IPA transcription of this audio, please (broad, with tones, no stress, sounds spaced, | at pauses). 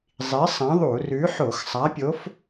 zˤ i˨˥ sˤ ɐ̃˨˥ ðˤ u˧˩˧ r ʉ˨˥ ħ o˧˩˧ x sˤ a˨˥ pʲ o˨˥ f